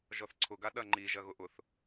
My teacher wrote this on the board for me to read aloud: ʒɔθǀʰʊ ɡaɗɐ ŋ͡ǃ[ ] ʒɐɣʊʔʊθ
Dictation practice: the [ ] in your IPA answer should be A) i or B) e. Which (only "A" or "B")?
A